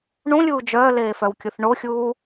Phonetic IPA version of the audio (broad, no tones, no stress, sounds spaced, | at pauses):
ɳ ũ lʲ uː d͡ʒ œː l eː f œ w kʲ u θ ɳ o xʲ uː